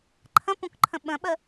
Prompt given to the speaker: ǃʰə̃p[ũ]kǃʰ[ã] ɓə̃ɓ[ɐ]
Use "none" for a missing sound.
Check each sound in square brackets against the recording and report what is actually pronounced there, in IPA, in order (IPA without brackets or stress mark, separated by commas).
ũ, ə̃, ə